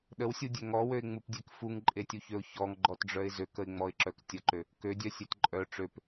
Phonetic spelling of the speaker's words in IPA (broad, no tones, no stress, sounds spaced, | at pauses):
ɗ ə w sʲ u dʲ ø ŋ ɔ w ø ɪ̯ ŋ͡m u p dʲ e k f u ŋ ǃʼ e tʲ u ç ø ʊ̯ ç ɔ ŋ ɡ͡ǃ ɔ t ɖ͡ʐ œ ɪ̯ z ø k ə ɪ̯ ŋ͡m ɔ ɪ̯ ǁ œ k tʲ ə ǃ ø | k ø dʲ œ sʲ e t ǃʼ œ ʈ͡ʂ ø p